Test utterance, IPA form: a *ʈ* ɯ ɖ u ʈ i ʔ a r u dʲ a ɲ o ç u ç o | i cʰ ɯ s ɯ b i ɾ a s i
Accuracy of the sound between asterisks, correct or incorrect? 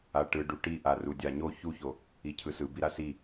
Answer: correct